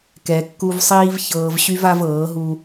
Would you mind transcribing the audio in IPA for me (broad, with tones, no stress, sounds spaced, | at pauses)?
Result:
k ɛ˨ kː u˧ v sˤ iː˦ v ç ɤː˧ v ɕ y˦ v a˦ v ɤː˨˦ ɦ u˦